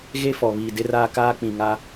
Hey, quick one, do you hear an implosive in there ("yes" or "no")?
no